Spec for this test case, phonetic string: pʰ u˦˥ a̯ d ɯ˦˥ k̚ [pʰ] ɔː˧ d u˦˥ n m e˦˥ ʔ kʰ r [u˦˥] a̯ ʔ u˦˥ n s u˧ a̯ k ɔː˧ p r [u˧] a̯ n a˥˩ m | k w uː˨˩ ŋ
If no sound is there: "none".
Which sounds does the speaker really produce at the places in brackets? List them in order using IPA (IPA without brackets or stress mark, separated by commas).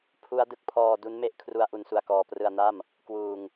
pʰ, u˦˥, ɯ˧